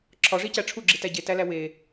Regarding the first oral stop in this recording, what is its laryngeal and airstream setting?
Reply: click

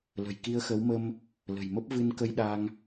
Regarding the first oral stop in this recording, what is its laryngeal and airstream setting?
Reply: plain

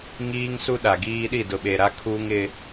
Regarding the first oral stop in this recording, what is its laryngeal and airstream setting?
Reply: implosive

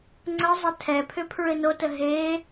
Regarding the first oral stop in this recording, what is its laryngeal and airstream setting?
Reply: click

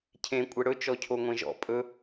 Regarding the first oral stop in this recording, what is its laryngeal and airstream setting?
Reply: aspirated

